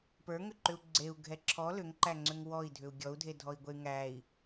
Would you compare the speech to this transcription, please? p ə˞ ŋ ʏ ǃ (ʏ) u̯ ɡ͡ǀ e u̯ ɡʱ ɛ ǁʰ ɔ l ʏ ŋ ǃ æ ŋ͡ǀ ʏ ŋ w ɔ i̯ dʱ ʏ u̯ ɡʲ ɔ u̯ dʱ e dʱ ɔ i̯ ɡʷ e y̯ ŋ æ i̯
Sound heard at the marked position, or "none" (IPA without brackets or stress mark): ʏ